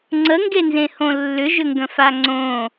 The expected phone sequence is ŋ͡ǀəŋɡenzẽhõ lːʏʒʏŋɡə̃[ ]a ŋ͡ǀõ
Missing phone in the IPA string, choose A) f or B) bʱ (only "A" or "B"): A